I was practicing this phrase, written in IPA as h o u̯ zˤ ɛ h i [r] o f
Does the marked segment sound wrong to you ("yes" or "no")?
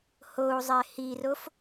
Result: no